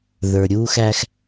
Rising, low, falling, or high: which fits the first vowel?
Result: low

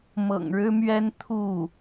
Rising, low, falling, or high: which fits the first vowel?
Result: low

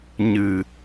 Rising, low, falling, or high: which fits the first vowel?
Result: low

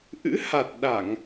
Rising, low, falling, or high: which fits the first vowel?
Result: rising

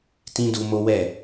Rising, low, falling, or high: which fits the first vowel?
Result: high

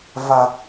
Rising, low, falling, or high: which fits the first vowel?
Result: low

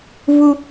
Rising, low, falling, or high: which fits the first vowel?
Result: high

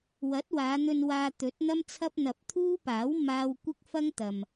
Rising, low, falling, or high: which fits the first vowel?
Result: rising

